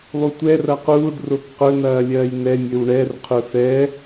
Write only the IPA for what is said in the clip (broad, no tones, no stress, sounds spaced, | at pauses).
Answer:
lˠ u tʷ ɛ r ɐ q uː ɖ r o k q ɵ n ɐː lʲ ɐː j n ɛ mʲ ɵ w ɳ ɛ r qʰ ɵ f ɛ